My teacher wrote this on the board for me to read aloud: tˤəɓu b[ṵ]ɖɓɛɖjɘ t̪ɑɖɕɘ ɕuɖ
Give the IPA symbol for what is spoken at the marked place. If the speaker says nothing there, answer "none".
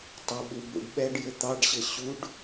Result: ṵ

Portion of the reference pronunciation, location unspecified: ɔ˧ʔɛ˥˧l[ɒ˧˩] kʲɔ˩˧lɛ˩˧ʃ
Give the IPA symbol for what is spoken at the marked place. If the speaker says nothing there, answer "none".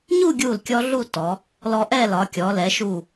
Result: ɒ˩˧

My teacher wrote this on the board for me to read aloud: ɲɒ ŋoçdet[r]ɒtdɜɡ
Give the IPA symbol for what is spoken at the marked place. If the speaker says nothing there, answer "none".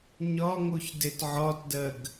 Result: ʕ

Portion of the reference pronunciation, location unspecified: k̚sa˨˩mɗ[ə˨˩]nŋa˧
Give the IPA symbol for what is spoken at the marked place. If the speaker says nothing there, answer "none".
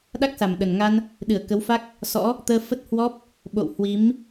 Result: ə˨˩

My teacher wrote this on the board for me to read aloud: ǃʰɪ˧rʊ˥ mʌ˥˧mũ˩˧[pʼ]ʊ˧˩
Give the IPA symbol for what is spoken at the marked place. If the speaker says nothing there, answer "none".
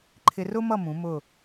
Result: m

